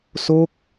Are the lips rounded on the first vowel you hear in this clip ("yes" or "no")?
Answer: yes